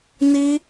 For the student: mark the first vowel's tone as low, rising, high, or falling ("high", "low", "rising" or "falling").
high